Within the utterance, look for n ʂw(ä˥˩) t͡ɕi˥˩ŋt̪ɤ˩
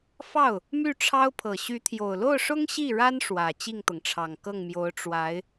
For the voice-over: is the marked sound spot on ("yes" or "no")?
no